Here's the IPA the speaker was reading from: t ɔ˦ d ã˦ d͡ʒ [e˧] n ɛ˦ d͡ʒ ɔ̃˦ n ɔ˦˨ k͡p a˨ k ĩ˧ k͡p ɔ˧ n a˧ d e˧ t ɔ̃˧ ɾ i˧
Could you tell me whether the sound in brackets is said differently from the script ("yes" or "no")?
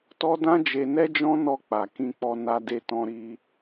no